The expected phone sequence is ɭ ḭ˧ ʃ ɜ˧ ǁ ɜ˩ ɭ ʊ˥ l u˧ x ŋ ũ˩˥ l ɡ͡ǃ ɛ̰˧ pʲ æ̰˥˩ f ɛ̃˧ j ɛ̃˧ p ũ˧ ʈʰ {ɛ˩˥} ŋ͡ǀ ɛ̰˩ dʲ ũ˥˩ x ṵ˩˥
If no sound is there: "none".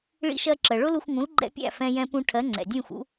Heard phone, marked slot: ɜ˩˥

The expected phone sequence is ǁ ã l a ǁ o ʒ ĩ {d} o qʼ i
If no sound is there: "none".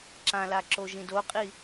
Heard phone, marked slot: d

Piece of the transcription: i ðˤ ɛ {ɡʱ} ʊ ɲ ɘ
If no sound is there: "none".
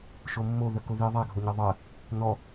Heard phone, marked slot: ɡʱ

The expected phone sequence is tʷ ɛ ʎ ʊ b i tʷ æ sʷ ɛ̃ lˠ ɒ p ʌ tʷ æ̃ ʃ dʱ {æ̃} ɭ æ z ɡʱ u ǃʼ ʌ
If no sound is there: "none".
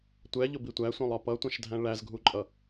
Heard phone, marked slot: æ̃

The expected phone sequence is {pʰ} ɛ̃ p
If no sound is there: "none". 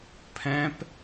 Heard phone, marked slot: pʰ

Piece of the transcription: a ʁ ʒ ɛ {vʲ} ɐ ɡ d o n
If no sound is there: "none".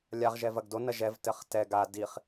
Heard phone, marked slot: v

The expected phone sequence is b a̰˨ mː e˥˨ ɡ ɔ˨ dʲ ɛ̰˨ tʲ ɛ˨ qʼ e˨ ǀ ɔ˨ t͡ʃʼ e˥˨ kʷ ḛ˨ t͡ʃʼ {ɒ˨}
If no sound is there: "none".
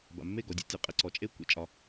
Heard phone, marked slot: ɒ˨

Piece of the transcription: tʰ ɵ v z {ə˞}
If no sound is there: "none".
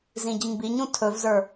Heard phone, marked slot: ə˞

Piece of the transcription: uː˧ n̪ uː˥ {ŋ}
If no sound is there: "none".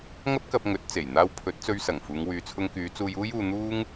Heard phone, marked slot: ŋ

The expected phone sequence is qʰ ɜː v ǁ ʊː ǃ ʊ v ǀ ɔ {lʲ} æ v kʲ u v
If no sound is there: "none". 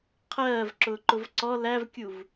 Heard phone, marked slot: l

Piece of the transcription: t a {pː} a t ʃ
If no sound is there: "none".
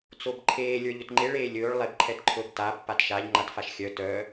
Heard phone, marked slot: pː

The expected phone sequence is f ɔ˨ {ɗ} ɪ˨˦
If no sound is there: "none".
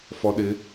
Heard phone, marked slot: ɗ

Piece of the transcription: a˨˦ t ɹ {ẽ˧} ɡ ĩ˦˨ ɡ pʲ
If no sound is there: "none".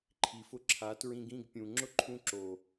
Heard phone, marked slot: ĩ˧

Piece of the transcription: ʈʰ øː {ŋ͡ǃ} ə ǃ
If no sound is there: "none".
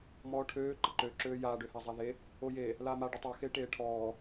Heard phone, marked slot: ǃ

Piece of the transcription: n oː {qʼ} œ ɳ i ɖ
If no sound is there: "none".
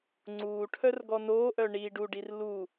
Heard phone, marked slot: ʔ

